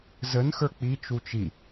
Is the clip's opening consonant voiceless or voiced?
voiced